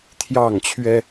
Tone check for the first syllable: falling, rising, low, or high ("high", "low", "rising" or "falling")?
falling